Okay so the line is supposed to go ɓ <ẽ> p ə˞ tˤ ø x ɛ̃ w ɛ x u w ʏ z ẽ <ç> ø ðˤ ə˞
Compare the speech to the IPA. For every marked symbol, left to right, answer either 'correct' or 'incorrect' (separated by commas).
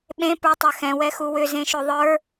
correct, incorrect